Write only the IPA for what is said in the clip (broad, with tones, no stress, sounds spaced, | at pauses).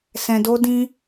s ɛ̃˧ d o˦ d ĩ˦